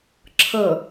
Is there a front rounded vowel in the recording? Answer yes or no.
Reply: no